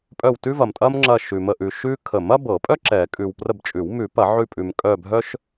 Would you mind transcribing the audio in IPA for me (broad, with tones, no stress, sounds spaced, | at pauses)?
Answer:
pʼ œ˦˨ w t ʉ˥ v ɐ˨ m tʼ ɐ˥ m ŋ͡ǁ ɐ˦˨ ʃ ʉ˨ m ə˦˨ ʔ ʉ˨ ʃ ʉ˥ kʰ ə˨˩˦ m ɐ˥ b ɤ˨˩˦ pʼ œ˥ ǁ ɛ˨˩˦ kʼ ʉ˨ w p r ə˦˨ b t͡ʃʼ ʉ˨˩˦ w m ʉ˨˩˦ p ɐ˨˩˦ ʕ ʉ˦˨ pʼ ʉ˨ m kʼ œ˦˨ bʱ œ˥ ʃ